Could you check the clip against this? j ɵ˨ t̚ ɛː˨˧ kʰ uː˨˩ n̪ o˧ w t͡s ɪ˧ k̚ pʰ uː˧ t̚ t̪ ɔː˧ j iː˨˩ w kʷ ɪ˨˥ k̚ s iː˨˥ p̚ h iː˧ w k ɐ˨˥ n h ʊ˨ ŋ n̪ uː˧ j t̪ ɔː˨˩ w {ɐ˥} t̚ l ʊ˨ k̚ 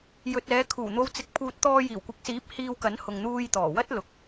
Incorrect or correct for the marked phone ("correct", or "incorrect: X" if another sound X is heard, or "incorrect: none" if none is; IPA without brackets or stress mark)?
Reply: correct